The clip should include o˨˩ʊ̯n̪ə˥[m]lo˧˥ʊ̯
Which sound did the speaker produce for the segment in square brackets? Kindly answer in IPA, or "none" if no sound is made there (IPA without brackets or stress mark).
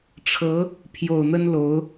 n